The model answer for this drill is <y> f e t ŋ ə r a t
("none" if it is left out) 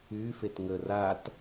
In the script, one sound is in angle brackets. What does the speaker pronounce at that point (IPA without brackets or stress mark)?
y